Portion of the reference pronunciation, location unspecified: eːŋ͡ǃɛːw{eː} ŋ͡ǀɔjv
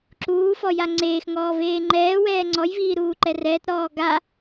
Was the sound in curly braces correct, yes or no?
no